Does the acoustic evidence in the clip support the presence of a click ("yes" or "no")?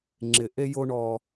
yes